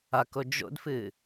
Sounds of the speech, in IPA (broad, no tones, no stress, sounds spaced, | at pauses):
a k o d͡ʒ o̰ d f ɨ